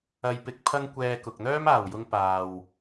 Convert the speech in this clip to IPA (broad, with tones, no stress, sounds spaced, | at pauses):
ɐ˧ j p ɪ˧ k̚ pʰ ɐ˥ ŋ kʷ ɛː˧ k ʊ˨ k̚ n̪ œː˥ m aː˨˩ w j ʊ˧ ŋ p aː˨ w